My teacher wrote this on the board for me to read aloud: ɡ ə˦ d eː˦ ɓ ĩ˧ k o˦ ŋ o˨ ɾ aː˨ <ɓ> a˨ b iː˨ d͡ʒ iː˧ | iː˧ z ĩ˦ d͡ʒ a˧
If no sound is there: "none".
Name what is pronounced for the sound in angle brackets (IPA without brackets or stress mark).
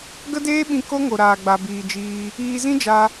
ɡ͡b